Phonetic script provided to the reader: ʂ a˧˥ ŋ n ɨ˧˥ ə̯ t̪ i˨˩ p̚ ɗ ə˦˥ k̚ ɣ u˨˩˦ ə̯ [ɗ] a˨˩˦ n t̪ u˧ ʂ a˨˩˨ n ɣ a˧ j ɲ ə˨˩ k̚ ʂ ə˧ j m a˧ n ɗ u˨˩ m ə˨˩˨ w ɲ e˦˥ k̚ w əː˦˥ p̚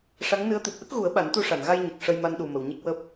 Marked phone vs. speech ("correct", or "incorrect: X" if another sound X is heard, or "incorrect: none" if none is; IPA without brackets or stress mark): incorrect: ɓ